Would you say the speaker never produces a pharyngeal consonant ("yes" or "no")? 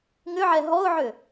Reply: no